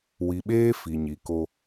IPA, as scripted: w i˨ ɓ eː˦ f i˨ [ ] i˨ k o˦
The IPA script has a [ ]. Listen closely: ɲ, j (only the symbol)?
ɲ